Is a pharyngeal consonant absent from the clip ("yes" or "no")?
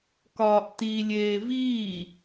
yes